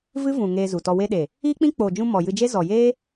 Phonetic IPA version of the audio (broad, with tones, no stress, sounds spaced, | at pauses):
v ɨ˦ v ũ˨ ŋ eː˧ z u˨ t ɔ˧ w e˧ ɗ e˨ | iː˦ k͡p ĩ˦ k͡p oː˨ d͡ʒ ũ˧ m ɔ˨ j ɨ˧ d͡ʒ e˦ z ɔ˨ j eː˦